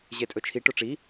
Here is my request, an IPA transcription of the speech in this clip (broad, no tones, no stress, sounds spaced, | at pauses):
ʑ e tʼ ɵ t͡ʃʰ i ʈ o ʈ͡ʂ i